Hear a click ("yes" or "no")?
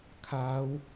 no